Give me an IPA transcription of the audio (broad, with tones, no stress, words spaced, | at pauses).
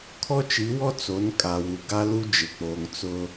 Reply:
kʰɔ˦t͡ʃi˨˦wɔ˦ t͡so˨˦n kʼa˨wu˨ ɡa˦lu˦ d͡ʒɪ˨k͡poː˨ŋ t͡sʊ˦